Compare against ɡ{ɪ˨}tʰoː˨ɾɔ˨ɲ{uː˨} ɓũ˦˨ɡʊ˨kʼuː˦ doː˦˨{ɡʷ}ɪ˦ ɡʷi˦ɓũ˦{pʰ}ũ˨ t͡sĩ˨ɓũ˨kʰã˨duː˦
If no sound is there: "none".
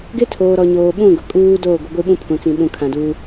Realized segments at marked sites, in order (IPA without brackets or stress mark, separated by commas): ɪ˦, oː˨, ɡʷ, pʰ